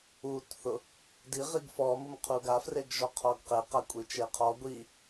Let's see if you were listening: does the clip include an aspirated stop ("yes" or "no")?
yes